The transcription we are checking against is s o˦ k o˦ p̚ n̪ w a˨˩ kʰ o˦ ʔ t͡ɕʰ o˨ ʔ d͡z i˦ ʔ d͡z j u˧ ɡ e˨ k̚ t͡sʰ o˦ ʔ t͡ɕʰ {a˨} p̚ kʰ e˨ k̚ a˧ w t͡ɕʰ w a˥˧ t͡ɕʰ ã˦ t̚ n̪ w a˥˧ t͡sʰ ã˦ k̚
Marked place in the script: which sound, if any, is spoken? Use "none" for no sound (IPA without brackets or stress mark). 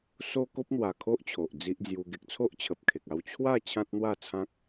ə˨